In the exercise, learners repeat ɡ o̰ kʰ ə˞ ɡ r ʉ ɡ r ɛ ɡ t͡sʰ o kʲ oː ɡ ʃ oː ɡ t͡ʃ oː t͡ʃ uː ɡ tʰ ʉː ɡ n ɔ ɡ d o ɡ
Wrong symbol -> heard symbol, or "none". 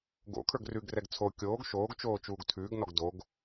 none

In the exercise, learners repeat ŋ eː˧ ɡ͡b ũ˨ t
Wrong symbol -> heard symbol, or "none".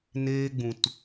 ŋ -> n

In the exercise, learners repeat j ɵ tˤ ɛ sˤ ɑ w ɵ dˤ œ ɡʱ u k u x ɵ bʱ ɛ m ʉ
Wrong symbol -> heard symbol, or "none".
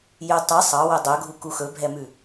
none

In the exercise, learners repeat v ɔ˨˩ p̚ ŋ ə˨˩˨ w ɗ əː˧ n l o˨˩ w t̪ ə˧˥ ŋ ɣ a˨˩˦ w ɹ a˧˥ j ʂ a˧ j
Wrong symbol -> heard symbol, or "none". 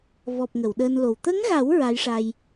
none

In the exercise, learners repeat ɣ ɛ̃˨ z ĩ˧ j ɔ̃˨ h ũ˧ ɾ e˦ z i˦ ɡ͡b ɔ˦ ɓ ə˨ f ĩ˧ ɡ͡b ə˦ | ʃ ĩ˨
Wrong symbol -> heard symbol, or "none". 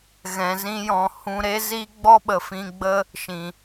none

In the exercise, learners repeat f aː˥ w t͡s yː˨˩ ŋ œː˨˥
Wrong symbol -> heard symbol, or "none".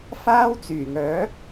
none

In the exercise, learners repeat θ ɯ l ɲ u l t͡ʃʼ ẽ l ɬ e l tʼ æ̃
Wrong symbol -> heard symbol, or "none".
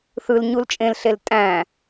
none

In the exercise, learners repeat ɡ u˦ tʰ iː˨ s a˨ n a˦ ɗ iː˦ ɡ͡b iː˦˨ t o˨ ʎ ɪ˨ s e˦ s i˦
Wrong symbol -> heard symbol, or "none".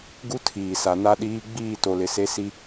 ʎ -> l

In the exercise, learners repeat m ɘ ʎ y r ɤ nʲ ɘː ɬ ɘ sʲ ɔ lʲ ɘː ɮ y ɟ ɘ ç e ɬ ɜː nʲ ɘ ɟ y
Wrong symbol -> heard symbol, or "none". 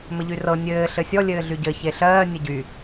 none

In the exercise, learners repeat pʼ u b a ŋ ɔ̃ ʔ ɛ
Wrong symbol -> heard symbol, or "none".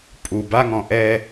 none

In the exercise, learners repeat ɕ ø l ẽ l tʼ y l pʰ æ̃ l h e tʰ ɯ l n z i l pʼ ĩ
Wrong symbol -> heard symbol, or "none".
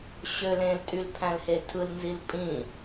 none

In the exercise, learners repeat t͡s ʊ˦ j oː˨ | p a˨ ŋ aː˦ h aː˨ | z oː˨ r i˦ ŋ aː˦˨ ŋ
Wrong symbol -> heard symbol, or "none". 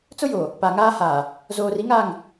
none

